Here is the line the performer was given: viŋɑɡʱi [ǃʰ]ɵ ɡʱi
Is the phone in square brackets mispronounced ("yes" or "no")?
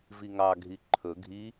no